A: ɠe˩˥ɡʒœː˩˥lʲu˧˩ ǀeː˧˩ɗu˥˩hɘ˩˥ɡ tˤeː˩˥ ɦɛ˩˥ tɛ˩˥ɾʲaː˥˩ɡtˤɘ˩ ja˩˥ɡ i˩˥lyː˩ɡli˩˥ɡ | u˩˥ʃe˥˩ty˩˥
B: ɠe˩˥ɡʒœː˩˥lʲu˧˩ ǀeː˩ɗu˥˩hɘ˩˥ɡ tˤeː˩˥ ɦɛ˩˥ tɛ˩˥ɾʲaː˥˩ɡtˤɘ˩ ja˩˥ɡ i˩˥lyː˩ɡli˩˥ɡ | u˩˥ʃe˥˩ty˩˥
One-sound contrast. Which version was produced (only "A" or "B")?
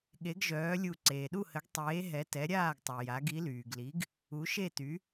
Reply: B